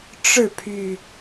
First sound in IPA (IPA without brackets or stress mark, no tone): ʈ͡ʂ